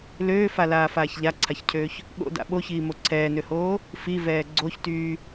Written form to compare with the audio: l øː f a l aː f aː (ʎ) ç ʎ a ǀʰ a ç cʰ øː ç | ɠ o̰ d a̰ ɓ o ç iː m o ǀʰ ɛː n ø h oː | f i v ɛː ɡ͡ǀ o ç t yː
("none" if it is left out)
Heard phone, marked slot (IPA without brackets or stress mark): none